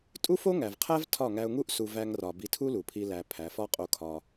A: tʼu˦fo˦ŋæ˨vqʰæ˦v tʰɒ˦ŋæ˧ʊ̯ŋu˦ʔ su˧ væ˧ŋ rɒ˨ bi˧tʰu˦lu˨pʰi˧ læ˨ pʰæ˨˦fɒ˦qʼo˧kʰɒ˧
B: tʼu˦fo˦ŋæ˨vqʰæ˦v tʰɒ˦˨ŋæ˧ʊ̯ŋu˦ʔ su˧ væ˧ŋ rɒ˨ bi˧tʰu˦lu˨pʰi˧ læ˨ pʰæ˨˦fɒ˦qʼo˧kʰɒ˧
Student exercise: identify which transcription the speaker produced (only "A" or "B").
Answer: B